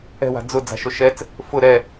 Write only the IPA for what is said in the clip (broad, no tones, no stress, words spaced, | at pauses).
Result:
ɛ̤wa̤ d͡zʊ d͡za̤ʃoʃɛt͡s | fʊ ɾɛ